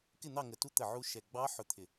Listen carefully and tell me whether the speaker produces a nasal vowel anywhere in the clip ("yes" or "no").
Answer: no